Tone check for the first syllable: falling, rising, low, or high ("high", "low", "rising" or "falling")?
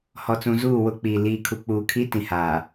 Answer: low